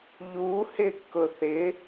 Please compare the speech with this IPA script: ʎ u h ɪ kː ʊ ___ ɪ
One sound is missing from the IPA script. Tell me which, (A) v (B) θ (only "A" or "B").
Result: B